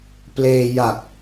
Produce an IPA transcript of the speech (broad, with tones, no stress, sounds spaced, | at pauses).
p l eː˧ j a˨˩ k̚